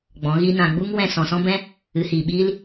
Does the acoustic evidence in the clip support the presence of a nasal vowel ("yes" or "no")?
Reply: yes